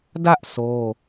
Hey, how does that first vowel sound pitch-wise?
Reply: high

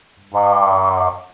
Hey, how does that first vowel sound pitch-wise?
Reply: low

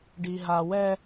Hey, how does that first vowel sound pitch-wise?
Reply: low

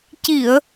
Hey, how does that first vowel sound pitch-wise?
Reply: low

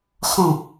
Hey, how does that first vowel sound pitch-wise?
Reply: falling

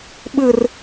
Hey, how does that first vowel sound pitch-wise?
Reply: high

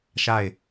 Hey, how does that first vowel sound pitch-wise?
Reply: falling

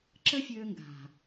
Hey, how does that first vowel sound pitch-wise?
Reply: high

